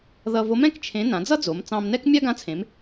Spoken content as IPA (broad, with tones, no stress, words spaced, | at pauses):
ðʌ˧vo˧˥m ɛ̃˥kt͡ʃʰẽ˧˥ nã˩˧d͡zʌ˥d͡zo˩˧m t͡sɑ̃˧mnɛ˥k mʲa˥ɡã˧˥t͡sʰẽ˩˧m